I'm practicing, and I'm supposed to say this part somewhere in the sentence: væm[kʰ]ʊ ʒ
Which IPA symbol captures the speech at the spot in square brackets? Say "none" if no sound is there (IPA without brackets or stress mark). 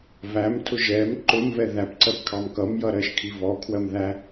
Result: tʰ